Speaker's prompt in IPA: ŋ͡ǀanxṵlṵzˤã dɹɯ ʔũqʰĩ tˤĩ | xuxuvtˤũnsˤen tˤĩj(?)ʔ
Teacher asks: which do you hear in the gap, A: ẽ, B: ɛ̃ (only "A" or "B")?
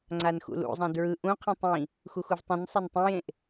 A